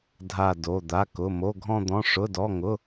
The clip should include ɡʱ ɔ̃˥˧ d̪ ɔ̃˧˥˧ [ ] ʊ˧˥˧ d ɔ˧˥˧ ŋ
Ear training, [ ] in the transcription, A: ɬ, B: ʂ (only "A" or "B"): B